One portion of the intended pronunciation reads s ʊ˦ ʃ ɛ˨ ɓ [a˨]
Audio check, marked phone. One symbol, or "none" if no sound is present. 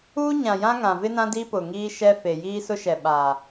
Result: aː˨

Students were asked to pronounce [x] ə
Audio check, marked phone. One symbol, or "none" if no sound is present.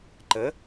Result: ǃ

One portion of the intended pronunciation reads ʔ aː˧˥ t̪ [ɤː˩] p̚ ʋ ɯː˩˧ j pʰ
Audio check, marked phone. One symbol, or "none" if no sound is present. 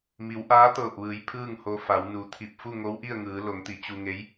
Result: ɤː˧˩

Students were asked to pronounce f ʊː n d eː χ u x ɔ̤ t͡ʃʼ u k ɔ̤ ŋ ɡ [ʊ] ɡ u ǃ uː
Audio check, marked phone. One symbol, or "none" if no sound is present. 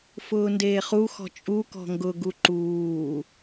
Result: ʊ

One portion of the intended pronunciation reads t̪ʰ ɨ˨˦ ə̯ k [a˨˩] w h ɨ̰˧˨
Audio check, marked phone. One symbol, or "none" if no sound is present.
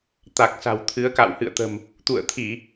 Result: a̰˧˨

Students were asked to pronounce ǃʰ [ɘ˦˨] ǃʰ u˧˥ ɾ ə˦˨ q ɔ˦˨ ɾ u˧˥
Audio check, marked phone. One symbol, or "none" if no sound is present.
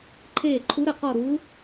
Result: e˦˨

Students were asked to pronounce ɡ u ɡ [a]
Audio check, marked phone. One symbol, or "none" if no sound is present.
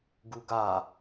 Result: a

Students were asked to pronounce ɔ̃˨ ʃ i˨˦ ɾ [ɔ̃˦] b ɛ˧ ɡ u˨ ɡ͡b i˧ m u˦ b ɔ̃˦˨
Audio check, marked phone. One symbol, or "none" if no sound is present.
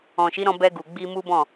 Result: ɔ̃˧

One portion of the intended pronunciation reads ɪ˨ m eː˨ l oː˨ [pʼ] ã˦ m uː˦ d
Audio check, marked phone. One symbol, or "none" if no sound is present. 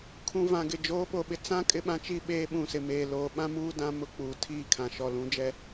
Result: ɓ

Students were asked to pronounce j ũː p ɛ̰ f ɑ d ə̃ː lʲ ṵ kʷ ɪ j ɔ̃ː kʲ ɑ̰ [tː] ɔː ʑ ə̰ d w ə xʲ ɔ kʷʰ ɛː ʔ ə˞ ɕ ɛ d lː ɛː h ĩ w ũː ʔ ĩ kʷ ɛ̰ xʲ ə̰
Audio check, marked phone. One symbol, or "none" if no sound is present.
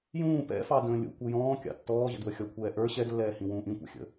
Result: tː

